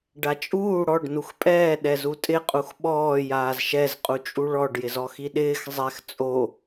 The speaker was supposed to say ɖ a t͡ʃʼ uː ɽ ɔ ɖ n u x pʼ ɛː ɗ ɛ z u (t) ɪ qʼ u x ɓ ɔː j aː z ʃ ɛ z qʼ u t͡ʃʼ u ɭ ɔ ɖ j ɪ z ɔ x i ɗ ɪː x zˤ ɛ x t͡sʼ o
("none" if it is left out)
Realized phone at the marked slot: tʼ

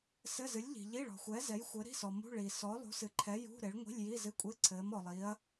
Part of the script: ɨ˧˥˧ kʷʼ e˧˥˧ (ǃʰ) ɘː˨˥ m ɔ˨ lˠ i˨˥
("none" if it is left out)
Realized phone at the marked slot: ǀʰ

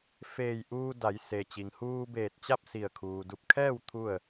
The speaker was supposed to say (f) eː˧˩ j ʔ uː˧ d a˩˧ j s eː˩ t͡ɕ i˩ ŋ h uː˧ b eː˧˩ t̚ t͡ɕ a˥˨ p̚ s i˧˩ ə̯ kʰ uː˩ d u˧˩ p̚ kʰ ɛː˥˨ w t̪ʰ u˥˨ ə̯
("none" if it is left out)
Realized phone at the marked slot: f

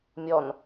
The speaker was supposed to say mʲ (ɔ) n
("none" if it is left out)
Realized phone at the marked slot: ɔ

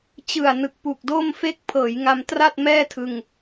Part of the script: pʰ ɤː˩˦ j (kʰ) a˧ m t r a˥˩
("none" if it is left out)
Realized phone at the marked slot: ŋ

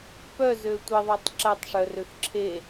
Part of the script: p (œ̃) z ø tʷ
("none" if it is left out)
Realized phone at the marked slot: œ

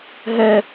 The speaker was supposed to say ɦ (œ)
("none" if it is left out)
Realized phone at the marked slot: ɛ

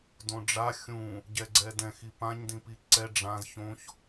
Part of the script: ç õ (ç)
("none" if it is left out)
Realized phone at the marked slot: ç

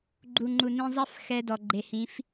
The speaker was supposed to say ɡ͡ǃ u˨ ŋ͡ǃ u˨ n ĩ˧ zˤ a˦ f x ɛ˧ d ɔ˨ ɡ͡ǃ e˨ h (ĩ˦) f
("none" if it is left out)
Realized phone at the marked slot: ĩ˨˦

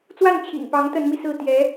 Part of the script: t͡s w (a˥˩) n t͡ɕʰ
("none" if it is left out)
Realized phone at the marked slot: a˥˩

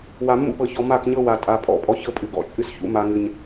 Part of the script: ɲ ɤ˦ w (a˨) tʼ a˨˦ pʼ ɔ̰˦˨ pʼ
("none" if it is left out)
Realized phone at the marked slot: a˨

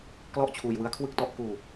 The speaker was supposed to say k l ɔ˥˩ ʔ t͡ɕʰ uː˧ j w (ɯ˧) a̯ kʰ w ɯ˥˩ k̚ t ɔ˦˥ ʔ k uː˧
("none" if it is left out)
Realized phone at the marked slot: ɯ˦˥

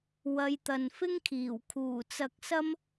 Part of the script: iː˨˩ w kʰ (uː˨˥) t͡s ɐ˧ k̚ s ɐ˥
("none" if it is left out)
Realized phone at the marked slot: uː˨˩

